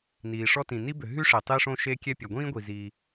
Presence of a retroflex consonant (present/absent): present